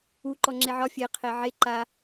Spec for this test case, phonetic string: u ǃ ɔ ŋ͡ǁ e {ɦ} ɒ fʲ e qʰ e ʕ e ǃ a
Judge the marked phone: incorrect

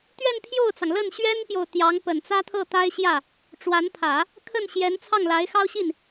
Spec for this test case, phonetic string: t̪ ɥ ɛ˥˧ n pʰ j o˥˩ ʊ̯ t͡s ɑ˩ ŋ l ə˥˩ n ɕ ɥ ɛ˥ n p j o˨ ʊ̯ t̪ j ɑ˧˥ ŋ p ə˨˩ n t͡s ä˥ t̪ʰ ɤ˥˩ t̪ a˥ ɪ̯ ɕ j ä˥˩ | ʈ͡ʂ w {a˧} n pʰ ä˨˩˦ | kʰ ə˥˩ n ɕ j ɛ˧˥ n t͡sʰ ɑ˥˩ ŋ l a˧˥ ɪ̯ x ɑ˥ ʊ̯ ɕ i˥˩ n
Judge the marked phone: incorrect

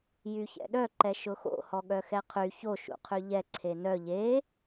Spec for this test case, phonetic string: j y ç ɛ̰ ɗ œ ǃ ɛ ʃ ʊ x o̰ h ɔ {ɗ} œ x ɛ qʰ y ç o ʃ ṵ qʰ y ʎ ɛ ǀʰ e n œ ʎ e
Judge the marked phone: incorrect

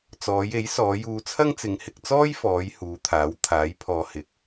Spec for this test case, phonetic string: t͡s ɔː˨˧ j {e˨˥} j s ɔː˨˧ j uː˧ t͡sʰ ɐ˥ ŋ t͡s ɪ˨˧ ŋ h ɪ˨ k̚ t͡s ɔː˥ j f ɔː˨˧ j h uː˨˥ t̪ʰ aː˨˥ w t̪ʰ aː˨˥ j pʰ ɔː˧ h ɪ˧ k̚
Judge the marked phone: correct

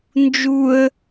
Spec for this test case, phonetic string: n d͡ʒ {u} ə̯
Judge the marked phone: correct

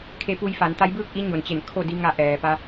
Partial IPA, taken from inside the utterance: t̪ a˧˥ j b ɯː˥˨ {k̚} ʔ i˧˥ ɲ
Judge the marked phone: correct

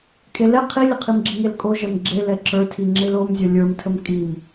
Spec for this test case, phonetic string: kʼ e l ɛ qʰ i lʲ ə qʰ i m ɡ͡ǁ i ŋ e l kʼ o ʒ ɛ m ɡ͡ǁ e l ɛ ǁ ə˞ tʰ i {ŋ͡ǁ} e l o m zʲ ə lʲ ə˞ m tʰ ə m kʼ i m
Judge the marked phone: correct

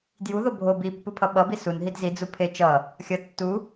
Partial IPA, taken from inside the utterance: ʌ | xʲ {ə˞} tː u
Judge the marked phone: incorrect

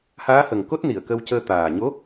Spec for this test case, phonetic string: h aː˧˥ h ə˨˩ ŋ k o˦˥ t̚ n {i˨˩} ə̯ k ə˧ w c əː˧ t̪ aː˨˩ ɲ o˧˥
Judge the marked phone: incorrect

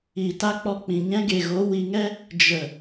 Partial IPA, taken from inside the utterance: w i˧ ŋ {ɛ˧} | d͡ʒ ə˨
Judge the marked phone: incorrect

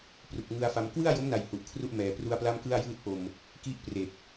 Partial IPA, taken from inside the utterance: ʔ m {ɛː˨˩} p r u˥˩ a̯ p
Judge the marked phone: correct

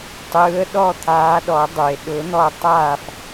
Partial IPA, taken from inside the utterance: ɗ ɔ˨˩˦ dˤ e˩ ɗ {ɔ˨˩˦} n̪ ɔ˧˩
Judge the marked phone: incorrect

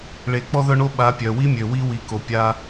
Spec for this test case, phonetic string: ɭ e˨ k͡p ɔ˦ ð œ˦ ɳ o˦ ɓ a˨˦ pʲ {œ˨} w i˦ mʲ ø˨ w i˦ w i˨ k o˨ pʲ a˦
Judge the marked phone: correct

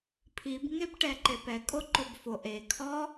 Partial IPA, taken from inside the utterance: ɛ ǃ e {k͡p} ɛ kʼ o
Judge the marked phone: incorrect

